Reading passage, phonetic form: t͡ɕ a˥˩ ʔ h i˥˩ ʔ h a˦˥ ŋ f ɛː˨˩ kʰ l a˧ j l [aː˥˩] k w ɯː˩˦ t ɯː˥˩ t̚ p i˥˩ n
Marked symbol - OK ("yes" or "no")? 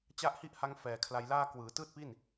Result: yes